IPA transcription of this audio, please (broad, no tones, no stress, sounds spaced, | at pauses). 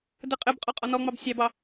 d ɘ qʼ ɘ b qʼ ɒ qʼ ɒ n ɔ ŋ͡m ɑ b sʲ ɑ b ɑ